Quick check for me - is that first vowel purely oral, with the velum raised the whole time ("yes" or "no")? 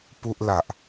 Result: yes